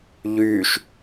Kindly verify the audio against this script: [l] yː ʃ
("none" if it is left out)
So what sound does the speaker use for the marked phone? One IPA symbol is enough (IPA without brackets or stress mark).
ʎ